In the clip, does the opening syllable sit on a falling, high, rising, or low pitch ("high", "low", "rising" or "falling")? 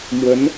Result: rising